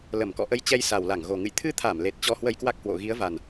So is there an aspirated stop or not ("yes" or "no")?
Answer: yes